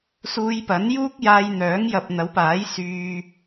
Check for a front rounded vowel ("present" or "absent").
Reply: present